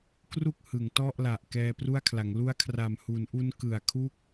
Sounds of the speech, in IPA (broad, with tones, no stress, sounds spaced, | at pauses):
k r u˥˩ k̚ h ɯ˩˦ ŋ t ɔ˥˩ ʔ l a˨˩ ʔ k ɛː˧ p r u˥˩ a̯ kʰ l a˩˦ ŋ l u˦˥ a̯ kʰ r a˨˩ m h u˩˦ n ʔ u˦˥ n k ɯ˨˩ a̯ kʰ u˥˩ k̚